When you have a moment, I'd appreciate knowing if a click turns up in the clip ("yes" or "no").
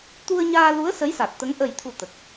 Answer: no